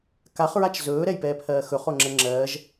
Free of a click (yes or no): no